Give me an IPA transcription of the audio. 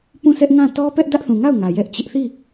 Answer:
p ũ˦˨ sʰ ɛ˦ ʔ ŋ ã˦˨ t ɔ˦ p ɛ˦ ʔ d ä˦ ʔ θ ũ˨ ŋ a˦˨ ʊ̯ ŋ ä˨ j ɛ˦ ʔ t͡ɕ ɪ˦ ʔ θ i˦˨

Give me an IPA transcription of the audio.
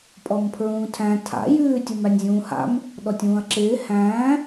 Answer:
pʼ ɔ m pʰ ɹ ũː tʰ æ̃ tʰ a̰ j ʉː tʲ u m æ nʲ zʲ ũː h a̰ m | ɗ ɔ tʲ ũː ɐ̯ ǁ ɪː h æ̃ː

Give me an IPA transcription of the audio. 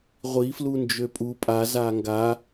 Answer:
ʁʷ i f l u n d͡ʒ ø pʼ u pʼ a z a ŋ ɡ a

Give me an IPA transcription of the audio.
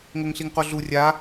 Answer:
ŋ o ŋ ɬ i ŋ q o ɮ u rʲ a

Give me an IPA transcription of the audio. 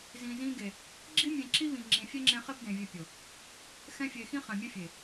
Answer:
z ĩ˨ z ĩ˧ ɡ e˨ | ɡ͡ǁ i˦ mʲ ẽ˧ ǁ i˦ β ĩ˨ ŋ͡ǁ ĩ˨ fʲ ɛ˦ ŋ͡ǁ ẽ˧ χ e˦ b d ẽ˨ vʲ e˧ pʲ o˨ | x ɛ̃˦ fʲ e˧ x ĩ˦ χ ɛ̃˨ mʲ ɛ˦ fʲ e˨

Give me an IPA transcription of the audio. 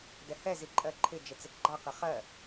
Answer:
d ɛ h ɛ z i ǃʼ ɜ ǃʰ ɪ d͡ʒ ə t͡s ɪ ɡ͡ǃ ɑ q ɪ χ ɜ

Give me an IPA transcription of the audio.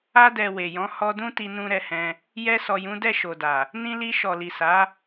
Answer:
a˧ d ɛ˨ w e˨ j ɔ̃˨˦ h ɔ˧ d ũ˦ t i˧ n ũ˧ ɾ ɛ˧ h ɛ̃˧ | j ɛ˧ s ɔ˨ j ũ˨˦ d ɛ˦˨ ʃ o˨ d a˨ | n ĩ˧ l i˧ ʃ ɔ˨ l i˨ s a˨˦

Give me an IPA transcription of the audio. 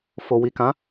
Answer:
f o˨ w i˨ k ã˨˦

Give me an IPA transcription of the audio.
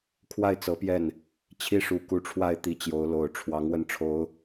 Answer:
kʰ w a˥˩ ɪ̯ t͡s ɤ˧˥ p j ɛ˥˩ n | t͡ɕʰ i˥˩ ʂ u˨˩ k u˧˥ ʈ͡ʂʰ w a˥˩ ɪ̯ t̪ i˨˩ t͡ɕ j o˧˥ ʊ̯ l o˨˩ ʊ̯ ʈ͡ʂʰ w ɑ˧˥ ŋ w ə˥˩ n ʈ͡ʂʰ o˧˥ ʊ̯

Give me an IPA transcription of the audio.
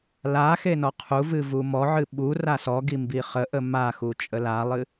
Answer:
l a x e n ɔ qʰ u v ɨ v u m ɔ ʕ ɨ ɓ u r a s ɔ ɡ i m b i χ ə ʔ ə m a x u t͡ʃʼ ə l a lˠ ɨ

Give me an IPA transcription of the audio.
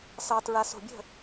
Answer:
s ɑ˨ t ɹ a˨ s o̤˨ bʲ ə̤˦˨

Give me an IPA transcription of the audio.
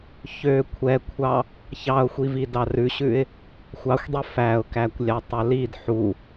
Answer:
ç ø kʷʰ ɛ kʷʰ ɑ | ç ɑ ʊ̯ xʷ i v i d ɑ r ʉ ɕ ʉ ɪ̯ | xʷ ɑ xʷ dˤ i f æ ʊ̯ k æ kʷ lʲ ɑ tˤ œ l i d ħ u

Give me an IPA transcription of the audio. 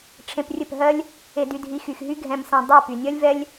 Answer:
ʈ͡ʂʰ ẽ˧ p rʲ ɘ˦˨ p ɦ ɜ˦ lʲ | e˧ d y˧ dʱ i˧ x y˨ x ɦ y˦ ɡʱ ɛ̃˧ m s ɛ̃˧ dˤ e˦˨ p y˨ nʲ ɜ˦ lʲ v ɛ˦ lʲ

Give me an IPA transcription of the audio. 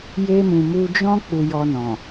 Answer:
j e˧ m ũ˨ m u˧ d͡ʒ ɔ̃˦ k͡p u˧ j ɔ˧ n ɔ̃˨

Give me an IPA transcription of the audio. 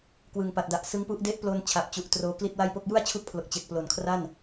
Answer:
k w ɯ˨˩ ŋ p a˨˩ t̚ d a˨˩ ʔ s ɯ˦˥ ŋ p u˦˥ ʔ d e˦˥ ʔ p l o˧ n t͡ɕʰ a˨˩ p̚ t͡ɕ u˨˩ ʔ t r oː˧ k l i˥˩ t̚ w a˥˩ j p o˥˩ k̚ j u˥˩ a̯ t͡ɕʰ u˦˥ k̚ pʰ l o˨˩ k̚ t͡ɕ e˨˩ k̚ p l o˨˩ n kʰ r a˥˩ n

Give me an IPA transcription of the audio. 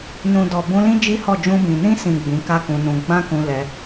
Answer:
n ũ˨ d ɔ˨ b ũ˧ l ĩ˦ d͡ʒ i˦ h ɔ˦˨ d͡ʒ ũ˧ b ĩ˨ n ĩ˧ s ĩ˨ ɡ͡b ĩ˨˦ k a˦ k ũ˧ n ũ˧ ɡ͡b ã˦ k ũ˧ l ɛ˧

